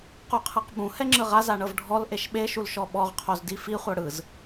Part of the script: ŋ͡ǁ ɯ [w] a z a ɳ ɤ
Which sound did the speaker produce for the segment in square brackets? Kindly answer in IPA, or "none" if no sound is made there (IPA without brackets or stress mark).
ʁ